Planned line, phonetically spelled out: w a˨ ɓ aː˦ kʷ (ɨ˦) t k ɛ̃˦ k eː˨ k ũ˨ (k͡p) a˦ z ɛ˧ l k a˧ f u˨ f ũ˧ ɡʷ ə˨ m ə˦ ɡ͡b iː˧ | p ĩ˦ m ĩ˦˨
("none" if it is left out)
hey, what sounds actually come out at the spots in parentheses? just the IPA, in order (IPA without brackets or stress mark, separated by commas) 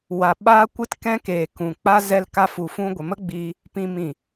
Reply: ɨ˦, k͡p